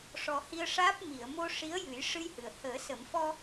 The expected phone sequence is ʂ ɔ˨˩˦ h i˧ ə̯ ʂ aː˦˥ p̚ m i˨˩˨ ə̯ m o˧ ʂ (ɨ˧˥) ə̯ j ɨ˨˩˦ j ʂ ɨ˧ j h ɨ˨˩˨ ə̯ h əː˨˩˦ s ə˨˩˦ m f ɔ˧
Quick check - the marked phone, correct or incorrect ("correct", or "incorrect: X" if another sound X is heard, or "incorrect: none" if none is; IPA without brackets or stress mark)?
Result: incorrect: i˧˥